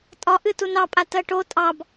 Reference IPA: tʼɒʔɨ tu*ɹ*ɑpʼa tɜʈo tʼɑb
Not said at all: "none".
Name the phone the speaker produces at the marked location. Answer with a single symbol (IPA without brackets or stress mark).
n